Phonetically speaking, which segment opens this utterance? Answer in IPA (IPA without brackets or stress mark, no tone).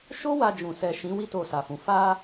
ʃ